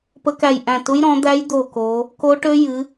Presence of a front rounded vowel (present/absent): present